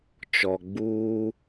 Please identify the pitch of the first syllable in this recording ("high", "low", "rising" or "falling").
low